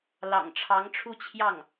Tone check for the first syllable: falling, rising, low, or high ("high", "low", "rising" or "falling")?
low